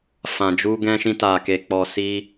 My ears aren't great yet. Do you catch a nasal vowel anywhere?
yes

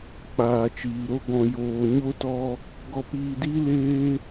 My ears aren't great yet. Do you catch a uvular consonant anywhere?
no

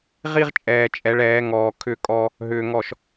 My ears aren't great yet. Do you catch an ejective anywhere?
yes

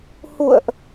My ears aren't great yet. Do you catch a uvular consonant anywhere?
no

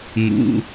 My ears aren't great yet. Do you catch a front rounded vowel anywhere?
no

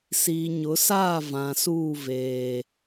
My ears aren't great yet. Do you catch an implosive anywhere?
no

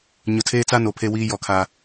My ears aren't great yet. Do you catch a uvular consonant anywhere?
no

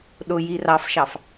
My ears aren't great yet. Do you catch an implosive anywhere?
yes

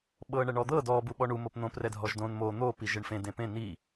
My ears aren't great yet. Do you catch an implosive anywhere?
yes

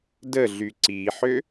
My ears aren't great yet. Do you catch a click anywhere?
yes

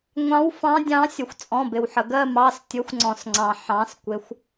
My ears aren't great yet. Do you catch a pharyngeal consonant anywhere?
yes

